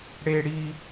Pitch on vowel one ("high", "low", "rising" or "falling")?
high